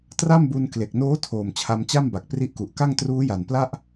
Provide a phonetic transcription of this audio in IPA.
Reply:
tra˥˩mbu˧nkle˨˩k̚noː˦˥ tʰoː˨˩mt͡ɕʰa˧mt͡ɕa˥˩mba˨˩k̚ pri˦˥ʔku˨˩ʔ ka˥˩ŋtruː˦˥ja˨˩npla˥˩ʔ

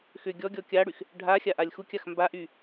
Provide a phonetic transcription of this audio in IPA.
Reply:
xʏ ɡʲɔ ɡʲɔkʲaɽyx | ɖʱa xʲaʔalʲxukʲax mbaʔy

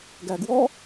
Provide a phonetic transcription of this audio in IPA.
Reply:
ɡæɡwɔ

